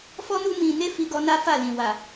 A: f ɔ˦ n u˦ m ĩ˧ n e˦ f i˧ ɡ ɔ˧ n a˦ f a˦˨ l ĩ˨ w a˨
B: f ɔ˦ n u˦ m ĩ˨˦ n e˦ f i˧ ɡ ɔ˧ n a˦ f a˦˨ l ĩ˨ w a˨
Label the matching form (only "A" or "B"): A